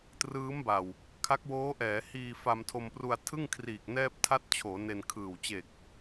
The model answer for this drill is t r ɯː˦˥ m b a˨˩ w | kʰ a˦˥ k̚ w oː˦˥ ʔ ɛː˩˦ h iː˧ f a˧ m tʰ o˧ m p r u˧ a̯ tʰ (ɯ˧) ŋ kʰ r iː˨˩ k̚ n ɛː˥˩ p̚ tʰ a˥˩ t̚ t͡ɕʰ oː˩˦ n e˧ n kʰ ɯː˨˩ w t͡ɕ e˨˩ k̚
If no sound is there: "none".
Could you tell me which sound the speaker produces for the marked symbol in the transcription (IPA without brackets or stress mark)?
ɯ˥˩